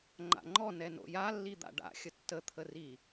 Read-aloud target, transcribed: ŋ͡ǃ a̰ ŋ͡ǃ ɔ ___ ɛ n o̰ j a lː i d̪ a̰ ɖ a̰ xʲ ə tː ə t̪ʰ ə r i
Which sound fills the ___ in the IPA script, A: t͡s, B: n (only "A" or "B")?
B